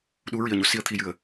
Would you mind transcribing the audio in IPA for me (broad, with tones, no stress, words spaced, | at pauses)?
ɗu˧˥ɹi˨˩ə̯ɲo˨˩˨ si˧ə̯ t̪ʰi˨˩jɨ˨˩˨ə̯